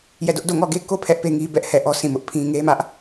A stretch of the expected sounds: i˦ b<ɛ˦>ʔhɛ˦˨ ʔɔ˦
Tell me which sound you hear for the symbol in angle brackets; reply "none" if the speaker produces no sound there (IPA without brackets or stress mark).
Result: ɛ˦